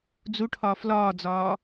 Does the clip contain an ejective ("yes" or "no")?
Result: no